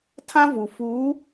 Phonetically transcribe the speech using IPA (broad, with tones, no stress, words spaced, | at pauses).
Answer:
tʰã˦vu˨ fuː˨˦